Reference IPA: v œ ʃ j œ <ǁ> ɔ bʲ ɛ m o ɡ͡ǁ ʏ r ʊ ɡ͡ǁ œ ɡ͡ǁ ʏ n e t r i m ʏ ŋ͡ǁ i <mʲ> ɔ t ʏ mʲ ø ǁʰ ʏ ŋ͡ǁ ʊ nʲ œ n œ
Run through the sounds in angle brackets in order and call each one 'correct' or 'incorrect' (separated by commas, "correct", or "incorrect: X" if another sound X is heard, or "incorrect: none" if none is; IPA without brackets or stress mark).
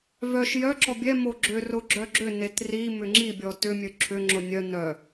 correct, incorrect: bʲ